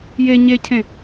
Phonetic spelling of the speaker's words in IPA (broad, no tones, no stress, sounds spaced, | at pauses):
j e ɲ e cʰ ẽ